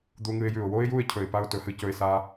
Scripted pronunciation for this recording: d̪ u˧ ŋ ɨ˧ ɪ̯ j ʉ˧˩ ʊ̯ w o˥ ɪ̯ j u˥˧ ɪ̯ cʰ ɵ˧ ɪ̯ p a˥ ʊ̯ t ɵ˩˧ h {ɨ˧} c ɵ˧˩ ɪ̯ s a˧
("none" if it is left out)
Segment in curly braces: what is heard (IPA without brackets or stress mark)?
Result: ɨ˧˩